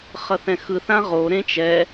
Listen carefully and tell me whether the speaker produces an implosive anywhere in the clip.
no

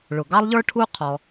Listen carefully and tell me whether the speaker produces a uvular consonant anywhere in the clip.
yes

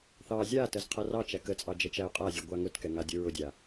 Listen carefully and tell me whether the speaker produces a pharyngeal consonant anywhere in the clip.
no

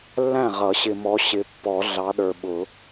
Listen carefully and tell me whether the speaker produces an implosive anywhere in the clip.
yes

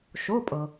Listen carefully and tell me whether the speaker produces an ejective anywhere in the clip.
yes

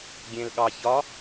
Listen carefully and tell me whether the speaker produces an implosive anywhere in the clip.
yes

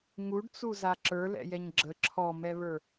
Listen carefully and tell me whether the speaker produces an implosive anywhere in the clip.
no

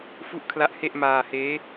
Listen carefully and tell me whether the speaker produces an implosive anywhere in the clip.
no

